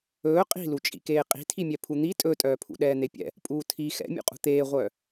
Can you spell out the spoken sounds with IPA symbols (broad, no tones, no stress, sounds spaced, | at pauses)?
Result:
ɵː qʼ i̤ l u t͡ʃʼ ḭ k eː qʼ i̤ tʰ i mʲ ɛ pʰ u n̪ i tʼ ɵ tʼ œː pʰ ṵ ɗ ɛː n̪ e pʲ ɛ̰ | pʼ uː tʰ i x ɛ̰ mʲ ṵ qʼ ṳ t̪ eː ʁʷ œː